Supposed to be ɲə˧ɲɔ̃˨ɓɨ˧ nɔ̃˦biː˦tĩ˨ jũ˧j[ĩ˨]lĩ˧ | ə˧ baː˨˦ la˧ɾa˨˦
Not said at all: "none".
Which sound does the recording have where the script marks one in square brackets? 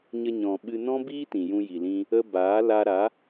i˨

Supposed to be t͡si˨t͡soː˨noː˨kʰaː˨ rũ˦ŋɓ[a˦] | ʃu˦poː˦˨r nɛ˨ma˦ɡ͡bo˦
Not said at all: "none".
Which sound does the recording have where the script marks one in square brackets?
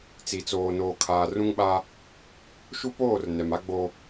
a˦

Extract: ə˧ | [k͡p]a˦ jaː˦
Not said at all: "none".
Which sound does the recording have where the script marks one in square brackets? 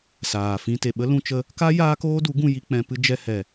k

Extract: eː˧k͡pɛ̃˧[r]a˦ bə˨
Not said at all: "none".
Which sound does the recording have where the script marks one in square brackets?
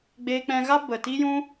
ɣ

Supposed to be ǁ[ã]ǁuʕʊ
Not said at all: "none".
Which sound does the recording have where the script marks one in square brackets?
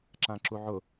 ã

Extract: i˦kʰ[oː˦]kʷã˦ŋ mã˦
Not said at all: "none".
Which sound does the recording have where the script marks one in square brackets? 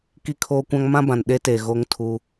oː˦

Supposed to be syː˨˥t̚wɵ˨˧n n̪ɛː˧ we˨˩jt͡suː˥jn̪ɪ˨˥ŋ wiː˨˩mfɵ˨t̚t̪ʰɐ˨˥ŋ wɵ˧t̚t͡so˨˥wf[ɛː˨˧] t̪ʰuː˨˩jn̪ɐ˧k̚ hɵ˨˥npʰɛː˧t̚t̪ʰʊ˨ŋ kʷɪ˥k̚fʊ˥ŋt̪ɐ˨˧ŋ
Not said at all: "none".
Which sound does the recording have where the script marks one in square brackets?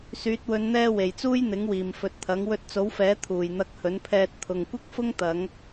ɛː˨˥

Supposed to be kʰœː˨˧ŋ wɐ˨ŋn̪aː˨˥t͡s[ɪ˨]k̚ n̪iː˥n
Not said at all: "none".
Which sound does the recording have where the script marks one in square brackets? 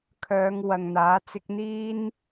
ɪ˥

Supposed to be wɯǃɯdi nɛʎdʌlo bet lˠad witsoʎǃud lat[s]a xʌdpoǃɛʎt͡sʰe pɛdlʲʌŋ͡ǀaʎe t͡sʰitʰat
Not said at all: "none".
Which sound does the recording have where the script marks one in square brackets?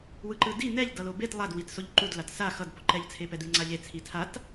s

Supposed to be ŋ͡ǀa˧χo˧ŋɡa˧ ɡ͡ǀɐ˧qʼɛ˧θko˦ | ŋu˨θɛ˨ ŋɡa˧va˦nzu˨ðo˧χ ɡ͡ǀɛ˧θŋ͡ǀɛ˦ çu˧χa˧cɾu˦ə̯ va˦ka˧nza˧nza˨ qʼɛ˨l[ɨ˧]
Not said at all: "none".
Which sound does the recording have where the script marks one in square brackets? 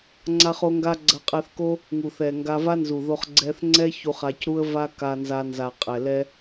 ɛ˧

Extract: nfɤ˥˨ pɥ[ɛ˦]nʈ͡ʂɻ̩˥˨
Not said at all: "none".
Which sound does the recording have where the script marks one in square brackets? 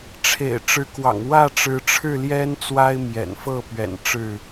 ɛ̰˨˩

